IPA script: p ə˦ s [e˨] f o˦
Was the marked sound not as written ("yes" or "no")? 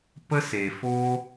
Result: no